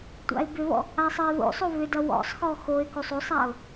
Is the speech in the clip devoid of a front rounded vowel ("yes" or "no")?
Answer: no